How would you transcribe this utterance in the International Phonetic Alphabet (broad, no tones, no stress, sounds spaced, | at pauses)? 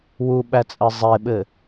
w u ɓ æ t͡sʼ ɘ zˤ e ɓ ɘ